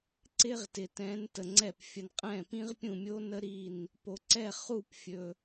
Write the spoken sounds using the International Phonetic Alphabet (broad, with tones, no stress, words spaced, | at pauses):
ǀɪ˥ʁtɪ˨ tɛ̃˧˥ntə˨ŋ͡ǀɛ˥˩p fʲə˨nqʼɛ̃˥˩pĩ˥ʁ pʲũ˥˩mʲo˥nə˥ ɾi˥˩n | po˨ǀɛ˥˩χu˥˩pfʲɵ˨